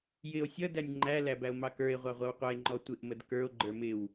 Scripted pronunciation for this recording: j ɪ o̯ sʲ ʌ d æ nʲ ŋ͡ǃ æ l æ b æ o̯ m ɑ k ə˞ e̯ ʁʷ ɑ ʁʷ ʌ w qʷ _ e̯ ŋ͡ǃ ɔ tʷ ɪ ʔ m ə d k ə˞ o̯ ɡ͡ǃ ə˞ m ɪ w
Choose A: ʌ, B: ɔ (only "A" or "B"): A